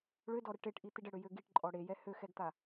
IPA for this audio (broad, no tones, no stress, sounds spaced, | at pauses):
ɭ ø d ɔ ɾ ə ʈ e ʈ ʔ i t̪ i ɖ ə ɽ ø j ø ɡ i ʈ ǃʼ ɔ ɽ e j ɛ h ø x ɛ ɡ t̪ a